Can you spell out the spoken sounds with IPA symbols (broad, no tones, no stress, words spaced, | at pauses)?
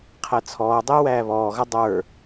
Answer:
qʰæt͡sʰɔːdˤɪː wæːβɔːɣʌ dˤə˞